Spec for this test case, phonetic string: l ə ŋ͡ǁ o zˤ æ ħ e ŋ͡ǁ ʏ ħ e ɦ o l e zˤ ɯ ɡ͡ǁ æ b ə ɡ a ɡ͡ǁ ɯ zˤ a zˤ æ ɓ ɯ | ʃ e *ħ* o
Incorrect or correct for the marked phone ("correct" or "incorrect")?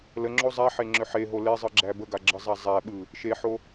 correct